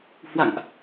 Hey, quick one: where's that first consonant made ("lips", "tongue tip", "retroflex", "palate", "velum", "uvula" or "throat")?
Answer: throat